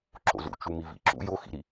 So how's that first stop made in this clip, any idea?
click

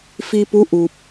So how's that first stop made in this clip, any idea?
plain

